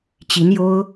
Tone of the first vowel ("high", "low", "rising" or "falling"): rising